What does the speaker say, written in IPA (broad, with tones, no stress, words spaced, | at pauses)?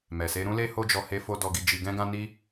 mɛ˨se˧ ɾũ˦le˦ho˦d͡ʒɔ˧ he˧fo˧ dɔ˧ɡi˧ d͡ʒi˧ɡɛ̃˦ɡã˦ ni˦